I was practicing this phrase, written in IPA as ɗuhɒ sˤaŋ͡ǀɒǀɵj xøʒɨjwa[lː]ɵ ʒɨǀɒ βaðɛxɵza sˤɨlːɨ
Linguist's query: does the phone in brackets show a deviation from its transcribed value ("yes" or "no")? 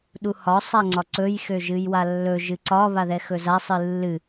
no